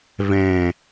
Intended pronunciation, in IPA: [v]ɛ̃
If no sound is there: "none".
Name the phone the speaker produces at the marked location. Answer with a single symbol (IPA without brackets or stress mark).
v